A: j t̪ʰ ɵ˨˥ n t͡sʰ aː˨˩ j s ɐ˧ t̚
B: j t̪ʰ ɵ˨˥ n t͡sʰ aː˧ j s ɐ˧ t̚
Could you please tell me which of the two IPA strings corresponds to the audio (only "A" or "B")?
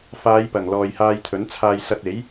B